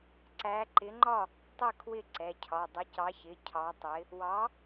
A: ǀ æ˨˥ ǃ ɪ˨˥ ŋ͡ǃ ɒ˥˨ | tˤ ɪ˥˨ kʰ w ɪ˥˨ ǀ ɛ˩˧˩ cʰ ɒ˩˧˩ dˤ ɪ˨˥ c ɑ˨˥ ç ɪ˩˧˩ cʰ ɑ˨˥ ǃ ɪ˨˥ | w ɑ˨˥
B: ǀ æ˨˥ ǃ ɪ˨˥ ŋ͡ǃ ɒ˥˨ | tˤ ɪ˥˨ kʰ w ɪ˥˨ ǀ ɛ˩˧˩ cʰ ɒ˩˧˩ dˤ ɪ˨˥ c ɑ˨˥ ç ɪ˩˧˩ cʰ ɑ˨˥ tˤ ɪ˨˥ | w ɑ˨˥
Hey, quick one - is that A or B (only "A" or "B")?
B